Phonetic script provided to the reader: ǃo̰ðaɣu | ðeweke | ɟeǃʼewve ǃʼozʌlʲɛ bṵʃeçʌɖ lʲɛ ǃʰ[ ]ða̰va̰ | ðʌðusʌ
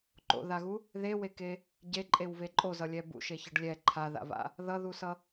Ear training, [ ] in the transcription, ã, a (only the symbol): a